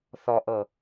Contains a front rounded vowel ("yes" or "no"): no